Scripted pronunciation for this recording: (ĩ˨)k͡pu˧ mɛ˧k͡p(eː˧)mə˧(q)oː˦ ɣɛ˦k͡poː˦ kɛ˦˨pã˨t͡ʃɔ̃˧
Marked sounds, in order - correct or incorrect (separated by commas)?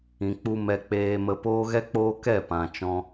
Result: correct, correct, incorrect